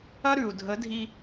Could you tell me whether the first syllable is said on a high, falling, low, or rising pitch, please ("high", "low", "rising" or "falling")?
high